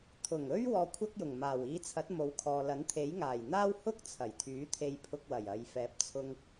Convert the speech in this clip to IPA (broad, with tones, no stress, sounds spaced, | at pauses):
t̪ʰ ʊ˨˩ ŋ ɵ˥ ɥ w ɔː˧ kʷʰ ɐ˥ k̚ j ʊ˨˩ ŋ m aː˨˩ w iː˧ t͡sʰ ɐ˨˥ t̚ m o˨˥ w kʰ ɔː˨ l ɐ˨˥ n t̪ʰ e˨˥ j ŋ aː˨˩ j n̪ aː˥ w h ʊ˥ k̚ t͡sʰ ɐ˨˩ j t̪ʰ yː˨˥ t̪ʰ e˧ j pʰ ʊ˧ k̚ w ɐ˨˩ j ɐ˨ j f ɛː˨˥ p̚ t͡sʰ ʊ˧ ŋ